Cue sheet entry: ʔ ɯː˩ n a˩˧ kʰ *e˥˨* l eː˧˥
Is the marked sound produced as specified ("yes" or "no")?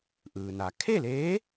yes